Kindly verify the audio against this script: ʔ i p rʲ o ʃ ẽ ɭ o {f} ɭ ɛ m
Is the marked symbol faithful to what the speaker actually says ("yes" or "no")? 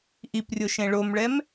no